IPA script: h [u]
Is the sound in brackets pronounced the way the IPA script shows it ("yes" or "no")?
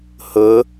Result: no